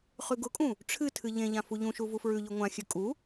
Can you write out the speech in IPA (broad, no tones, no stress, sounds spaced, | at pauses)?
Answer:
χ ʉ ɡ ʊ kʼ ũ | ʈ͡ʂʰ ɨ tʰ ɨ ʎ ẽ ʎ ã f u ʎ ũ ʃ u v u f ɹ ʉ ʎ ʉ ŋʷ ã xʲ ʉ kʼ u